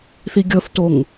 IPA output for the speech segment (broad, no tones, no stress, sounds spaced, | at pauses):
θ i ɡʲ ɤ θ t o ŋ